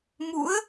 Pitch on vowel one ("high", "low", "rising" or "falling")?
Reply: rising